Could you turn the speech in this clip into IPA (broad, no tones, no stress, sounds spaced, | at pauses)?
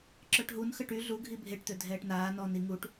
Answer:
ǁ œ ʈ ɦ u n x ə ʈ y ɮ u ɡʱ i bʱ e ʈ t̪ ø dʱ ɛː ʈ n aː n ɔː n i ŋ u ʈ